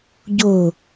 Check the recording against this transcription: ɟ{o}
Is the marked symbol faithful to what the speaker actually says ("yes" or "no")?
yes